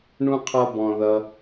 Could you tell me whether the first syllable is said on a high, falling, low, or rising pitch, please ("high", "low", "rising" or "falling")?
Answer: high